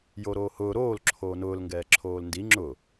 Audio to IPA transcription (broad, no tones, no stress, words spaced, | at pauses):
joɾoːhʊː ɾoːl ǁʰoːnʊːlŋɡɛː ǁʰoːlndi ŋ͡ǁʊ